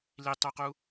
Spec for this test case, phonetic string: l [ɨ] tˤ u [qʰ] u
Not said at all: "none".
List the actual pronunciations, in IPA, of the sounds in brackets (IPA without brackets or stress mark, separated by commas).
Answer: i, q